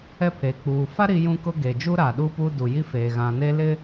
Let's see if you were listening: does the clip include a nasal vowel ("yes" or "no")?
yes